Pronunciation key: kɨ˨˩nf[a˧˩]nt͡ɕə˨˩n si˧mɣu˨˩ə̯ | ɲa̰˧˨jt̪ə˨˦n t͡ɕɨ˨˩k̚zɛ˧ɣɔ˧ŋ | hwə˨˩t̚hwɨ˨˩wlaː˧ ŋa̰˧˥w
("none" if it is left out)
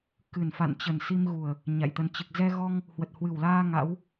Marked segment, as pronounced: a̰˧˨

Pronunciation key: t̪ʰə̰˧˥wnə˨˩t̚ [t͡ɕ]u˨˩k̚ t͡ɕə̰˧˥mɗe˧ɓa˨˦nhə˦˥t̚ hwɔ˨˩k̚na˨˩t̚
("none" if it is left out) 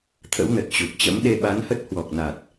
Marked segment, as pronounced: t͡ɕ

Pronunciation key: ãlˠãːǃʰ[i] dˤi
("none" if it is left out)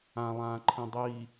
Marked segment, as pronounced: ĩ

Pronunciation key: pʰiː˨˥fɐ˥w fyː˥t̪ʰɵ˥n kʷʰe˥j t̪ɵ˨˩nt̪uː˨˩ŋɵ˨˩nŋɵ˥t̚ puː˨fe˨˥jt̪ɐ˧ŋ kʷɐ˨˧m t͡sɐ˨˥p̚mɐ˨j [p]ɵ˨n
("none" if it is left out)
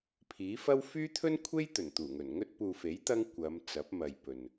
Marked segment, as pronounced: p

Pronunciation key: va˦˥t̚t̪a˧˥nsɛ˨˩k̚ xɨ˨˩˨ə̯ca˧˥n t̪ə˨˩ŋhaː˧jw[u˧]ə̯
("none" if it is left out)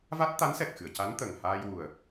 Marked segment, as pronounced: u˨˩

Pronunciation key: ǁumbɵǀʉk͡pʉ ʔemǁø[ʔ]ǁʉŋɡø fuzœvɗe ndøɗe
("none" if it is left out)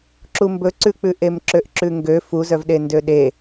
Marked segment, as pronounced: ʔ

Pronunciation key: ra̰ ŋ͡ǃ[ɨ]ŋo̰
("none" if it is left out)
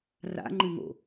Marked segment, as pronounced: ɨ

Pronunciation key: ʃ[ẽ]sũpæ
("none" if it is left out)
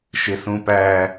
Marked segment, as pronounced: e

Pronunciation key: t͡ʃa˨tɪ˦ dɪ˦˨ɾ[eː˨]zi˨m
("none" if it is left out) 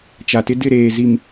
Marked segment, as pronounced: eː˨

